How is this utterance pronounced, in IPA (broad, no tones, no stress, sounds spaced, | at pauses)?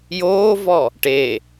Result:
j oː v ɔ | ʈ e